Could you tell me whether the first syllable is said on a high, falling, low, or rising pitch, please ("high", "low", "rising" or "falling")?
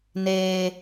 high